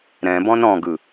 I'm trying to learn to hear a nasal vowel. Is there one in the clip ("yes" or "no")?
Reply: yes